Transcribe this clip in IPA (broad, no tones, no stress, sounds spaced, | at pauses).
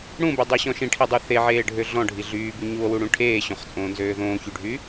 ɽ ũ b y dˤ ø ɕ ɔ̃ ʃ ĩ ʈʰ i dˤ y θ e ʕ eː ɖʱ ø ɮ ɔ̃ ɖʱ i ɮ yː b y ɲ u o̯ w u ɽ ũ ʈʰ eː ɕ õ χ t͡sʼ õː n z øː ð õː ç y ɖʱ y